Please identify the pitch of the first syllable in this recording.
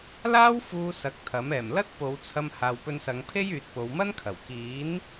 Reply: high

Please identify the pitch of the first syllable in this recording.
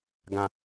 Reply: low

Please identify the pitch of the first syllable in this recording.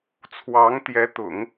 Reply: rising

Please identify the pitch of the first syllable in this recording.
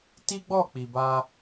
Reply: high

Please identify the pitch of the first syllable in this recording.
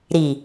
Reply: low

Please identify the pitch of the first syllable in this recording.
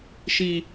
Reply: high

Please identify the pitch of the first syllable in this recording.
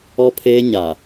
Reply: high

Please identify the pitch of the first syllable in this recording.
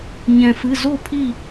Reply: low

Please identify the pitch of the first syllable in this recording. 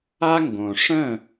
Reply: high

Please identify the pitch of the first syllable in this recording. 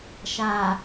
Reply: low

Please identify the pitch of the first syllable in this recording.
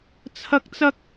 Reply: high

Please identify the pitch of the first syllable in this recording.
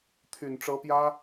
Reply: low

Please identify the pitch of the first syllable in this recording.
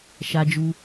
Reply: high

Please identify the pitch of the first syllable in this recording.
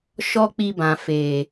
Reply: high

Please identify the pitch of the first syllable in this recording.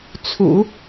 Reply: low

